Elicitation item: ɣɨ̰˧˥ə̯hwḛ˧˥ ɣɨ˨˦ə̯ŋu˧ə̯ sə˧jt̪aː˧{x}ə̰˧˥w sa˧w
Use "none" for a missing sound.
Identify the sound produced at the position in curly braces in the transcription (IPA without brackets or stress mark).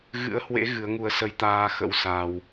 x